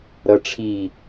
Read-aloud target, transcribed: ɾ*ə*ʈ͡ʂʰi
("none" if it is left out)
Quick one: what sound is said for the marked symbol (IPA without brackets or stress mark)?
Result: ʌ